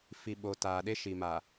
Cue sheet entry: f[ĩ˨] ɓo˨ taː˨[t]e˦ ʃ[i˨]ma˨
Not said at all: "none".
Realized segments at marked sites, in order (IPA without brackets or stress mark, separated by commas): i˨, ɗ, i˨